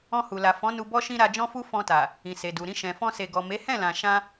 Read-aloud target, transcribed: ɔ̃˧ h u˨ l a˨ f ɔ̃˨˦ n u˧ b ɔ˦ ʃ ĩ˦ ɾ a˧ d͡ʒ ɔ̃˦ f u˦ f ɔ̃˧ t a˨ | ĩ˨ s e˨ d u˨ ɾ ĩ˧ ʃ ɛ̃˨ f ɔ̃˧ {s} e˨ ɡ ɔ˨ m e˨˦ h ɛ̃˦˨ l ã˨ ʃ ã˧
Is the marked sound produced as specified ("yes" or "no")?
yes